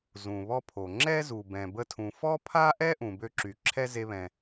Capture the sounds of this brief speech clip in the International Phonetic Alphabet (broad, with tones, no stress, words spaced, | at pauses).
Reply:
zũ˩βɔ˧pʰo˩ ŋ͡ǁɛ˥zu˩ bɛ̃˩bə˧tʰũ˩ fɔ˥pʰa˥ʔɛ˥ ʔũ˩bø˥ǁy˩ ǁʰɛ˥ze˧βɛ̃˩